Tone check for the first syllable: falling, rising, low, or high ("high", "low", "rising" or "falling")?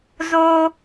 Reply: high